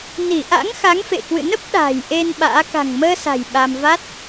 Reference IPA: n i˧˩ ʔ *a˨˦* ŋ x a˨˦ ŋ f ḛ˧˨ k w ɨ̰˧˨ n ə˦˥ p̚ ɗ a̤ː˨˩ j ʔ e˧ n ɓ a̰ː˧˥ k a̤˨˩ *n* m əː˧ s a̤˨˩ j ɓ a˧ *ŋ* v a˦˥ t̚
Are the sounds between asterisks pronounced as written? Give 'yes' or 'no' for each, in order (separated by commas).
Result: no, no, no